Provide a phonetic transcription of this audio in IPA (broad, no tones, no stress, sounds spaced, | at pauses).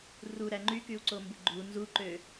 r u ɾ æ ŋ͡ǃ y k y u̯ ǀ o m b ɯ ɡ͡ǃ u n z u ǃ ø